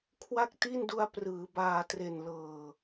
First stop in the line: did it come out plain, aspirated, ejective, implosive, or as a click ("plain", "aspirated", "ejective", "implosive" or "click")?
aspirated